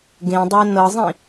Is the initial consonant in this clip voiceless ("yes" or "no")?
no